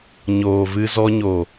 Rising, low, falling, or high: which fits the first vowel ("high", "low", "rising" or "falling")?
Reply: low